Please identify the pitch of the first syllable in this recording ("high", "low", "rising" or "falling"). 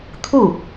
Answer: falling